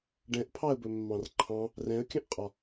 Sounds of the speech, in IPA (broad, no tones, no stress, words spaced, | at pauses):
ɖɛ̃ʔpʰɑə̯bɵmːɑ̃r ǃʰɑ̃ | rɛ̃ə̯kʲə̃ʔqʼɒ